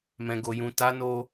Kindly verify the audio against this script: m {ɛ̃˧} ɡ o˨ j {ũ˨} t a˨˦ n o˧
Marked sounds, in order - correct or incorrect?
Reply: incorrect: ɛ̃˨, correct

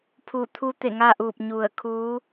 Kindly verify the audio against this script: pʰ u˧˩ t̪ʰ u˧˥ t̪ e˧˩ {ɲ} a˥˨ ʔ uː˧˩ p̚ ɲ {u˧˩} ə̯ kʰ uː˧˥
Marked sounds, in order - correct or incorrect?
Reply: incorrect: ŋ, correct

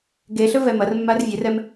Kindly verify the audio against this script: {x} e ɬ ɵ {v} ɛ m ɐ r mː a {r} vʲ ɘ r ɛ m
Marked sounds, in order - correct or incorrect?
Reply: incorrect: ɡ, correct, correct

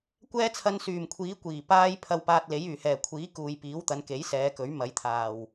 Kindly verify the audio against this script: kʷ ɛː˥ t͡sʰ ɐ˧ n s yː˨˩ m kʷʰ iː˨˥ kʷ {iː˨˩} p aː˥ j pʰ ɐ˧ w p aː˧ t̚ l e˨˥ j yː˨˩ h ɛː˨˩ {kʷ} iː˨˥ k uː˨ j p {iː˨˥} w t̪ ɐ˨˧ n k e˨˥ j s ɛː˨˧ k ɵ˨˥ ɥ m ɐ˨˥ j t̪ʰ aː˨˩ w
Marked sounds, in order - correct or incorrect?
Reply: correct, incorrect: kʷʰ, correct

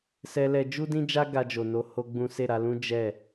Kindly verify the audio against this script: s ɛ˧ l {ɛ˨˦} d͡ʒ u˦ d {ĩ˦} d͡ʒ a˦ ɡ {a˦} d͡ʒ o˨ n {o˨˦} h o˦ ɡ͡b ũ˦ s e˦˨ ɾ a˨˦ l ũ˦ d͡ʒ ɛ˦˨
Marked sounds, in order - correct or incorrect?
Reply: incorrect: ɛ˧, correct, incorrect: a˧, correct

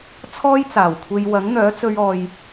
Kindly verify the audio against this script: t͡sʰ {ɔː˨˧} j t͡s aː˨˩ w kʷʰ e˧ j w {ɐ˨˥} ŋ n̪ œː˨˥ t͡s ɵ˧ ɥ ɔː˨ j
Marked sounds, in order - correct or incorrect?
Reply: incorrect: ɔː˥, correct

